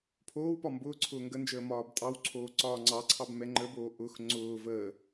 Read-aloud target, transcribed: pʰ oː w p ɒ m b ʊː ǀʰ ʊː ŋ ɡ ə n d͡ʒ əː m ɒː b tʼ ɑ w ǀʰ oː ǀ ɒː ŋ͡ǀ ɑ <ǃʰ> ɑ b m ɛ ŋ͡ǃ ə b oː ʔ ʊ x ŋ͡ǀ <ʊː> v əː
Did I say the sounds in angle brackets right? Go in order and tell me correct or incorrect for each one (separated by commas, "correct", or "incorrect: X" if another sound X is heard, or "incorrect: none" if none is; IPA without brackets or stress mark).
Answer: incorrect: ǀʰ, correct